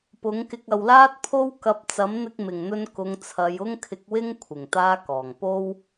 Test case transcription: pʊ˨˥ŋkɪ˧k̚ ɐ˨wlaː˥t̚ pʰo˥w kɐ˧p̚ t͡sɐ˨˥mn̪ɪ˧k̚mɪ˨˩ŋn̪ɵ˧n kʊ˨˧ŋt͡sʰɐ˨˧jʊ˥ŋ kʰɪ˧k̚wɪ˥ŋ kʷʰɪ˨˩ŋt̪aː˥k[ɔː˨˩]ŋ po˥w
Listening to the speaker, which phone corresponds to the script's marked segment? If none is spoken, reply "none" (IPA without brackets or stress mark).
ɔː˨˩